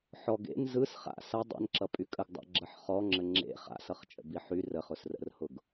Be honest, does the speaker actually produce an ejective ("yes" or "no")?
yes